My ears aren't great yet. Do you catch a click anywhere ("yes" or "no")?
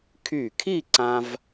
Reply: yes